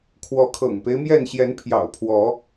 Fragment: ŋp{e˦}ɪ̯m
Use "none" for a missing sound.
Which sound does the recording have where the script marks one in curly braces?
e˦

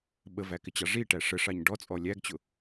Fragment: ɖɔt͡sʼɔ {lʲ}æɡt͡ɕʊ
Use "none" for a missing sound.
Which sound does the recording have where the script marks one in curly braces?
lʲ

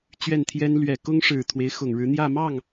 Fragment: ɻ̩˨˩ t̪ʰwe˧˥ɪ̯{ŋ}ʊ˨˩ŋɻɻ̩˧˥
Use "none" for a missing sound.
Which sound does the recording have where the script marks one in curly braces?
x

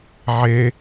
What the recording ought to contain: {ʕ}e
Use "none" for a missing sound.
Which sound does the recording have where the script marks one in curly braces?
ʕ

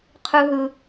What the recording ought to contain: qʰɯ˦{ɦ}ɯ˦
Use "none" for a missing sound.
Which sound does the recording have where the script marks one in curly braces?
ɦ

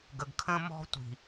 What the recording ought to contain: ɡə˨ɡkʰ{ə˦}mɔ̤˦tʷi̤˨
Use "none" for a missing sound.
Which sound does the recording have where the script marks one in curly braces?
ə̃˦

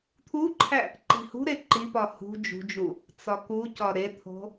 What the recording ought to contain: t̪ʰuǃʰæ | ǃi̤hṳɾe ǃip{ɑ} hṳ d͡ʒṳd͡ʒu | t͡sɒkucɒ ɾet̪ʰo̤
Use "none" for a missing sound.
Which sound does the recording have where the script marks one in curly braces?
ɒ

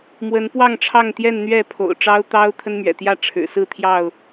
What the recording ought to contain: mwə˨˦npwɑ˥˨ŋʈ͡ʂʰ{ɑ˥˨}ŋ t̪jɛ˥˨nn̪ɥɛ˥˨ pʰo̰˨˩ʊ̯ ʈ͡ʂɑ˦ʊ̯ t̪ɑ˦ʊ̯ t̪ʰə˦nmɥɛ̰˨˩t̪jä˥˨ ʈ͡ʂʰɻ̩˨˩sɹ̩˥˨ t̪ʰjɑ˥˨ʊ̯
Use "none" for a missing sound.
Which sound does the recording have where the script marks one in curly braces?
ɑ˥˨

